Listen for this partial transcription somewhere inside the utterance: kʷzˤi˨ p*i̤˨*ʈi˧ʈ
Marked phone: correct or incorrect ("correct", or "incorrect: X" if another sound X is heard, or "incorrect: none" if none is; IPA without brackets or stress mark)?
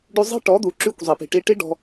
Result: correct